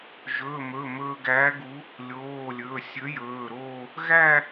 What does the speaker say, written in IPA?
ʒ ɵː˩˧˩ m ɵ˩˧˩ m ɵː˧ ɡ æ˨˥ ɡ u˨˥ | lʲ oː˩˧˩ lʲ ɵ˩˧˩ sʲ ɵ˨˥ j ɵː˩˧˩ ɾ oː˥˧ | ɣ æ˥˧

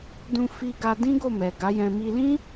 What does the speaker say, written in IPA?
d ũ˧ f i˧ ɡ a˧ d ĩ˦ ɡ o˦˨ m ɛ˨ ɡ a˨˦ j ɛ̃˧ m i˧ l ĩ˦

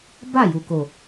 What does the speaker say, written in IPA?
b a˦˨ j u˨ k o˨

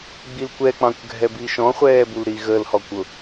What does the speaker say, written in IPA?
ɡ͡b i l kʷ ɛ k͡p ɑ̃ kʷ ɡʱ ɛ b i ʃ ɔ̃ χʷ ɛː b u l ɾ i ɣ ə l h ɔ kʷ ʊ

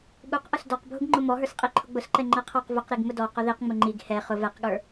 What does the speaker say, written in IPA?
ɠ u q ʔ ʊ s d ɔ q bʱ ʊ ɡ ŋ͡ǃ ʊ m ɔ ɦ ə˞ s qʼ i ǃʰ ʊ ɡ͡b ʊ s ǃ ɛ ŋ͡ǃ ɛ qʰ ɔ q v ʊ q ɾ i ɡ m ʊ d ɔ q ʊ ð i q ŋ͡m ʊ ŋ͡ǃ i ɡ h ɛ χ ʊ v ɛ q ɠ ə˞

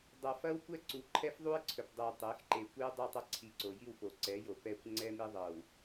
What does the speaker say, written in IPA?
dˤ ɤ˨ f ɐ˦ w kʷ ɛ˦ ǀ u˨ ǃʰ ɛ˦ f ðˤ u˦ ɪ̯ ǀʰ ɵ˨ p dˤ ɛ˨ ʊ̯ tˤ e˨˦ x ǃ e˨ kʷ i˦ ʊ̯ dˤ i˦˨ tˤ ɐ˦ ǀʰ i˨ ǀ o˨ j i˦˨ w p o˨ ǀ ɛ˨˦ j o˨ p ɛ˦˨ kʷ ŋ͡ǀ ɛ˦ m i˦ ðˤ ɤ˨ w

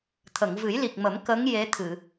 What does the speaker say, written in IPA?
t̪ʰ ə˨˩˨ ŋ v ɨ˨˩˦ j l i˨˩ k̚ m ə˨˩˦ m k ə˧˥ ŋ j e˧˥ t̪ʰ ɨ˨˩˨

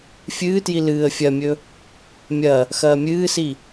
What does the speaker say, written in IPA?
fʲ ɨː t j i l ɨː ə̯ fʲ ɐ mʲ ɵ | mʲ ɐ | x ɐː mʲ ɨː s i

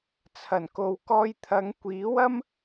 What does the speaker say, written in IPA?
t͡sʰ ɐ˨˩ n k o˨ w k ɔː˧ j t̪ʰ ɐ˨˧ ŋ kʷ iː˨˥ w ɐ˥ m

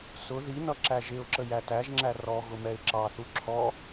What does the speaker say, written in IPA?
s ʊ ð i n ʌ ǁ æ ʒ ɪ ʊ̯ ǁ ə j æ t æ ʒ ŋ͡ǁ æ r ɔ ɣ ʊ m ɛ ɪ̯ ǁ ɑ θ u ǁʰ ɔ

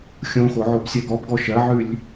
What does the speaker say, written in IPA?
xʲ õ x o ʕ o b sʲ ɜ ɡ ɔ b ɡ ɔ ʃ ɜ ʕ ʉ lʲ

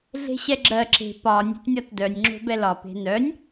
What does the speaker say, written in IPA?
ɮ e̤ ɕ ɛ ɡ͡ǁ ɜ ǁ e̤ p ɒ nʲ ɛ̤ t nʲ ɒ t d œ nʲ ŋ͡ǁ o̤ b ɛ l ɒ p e̤ n œ nʲ

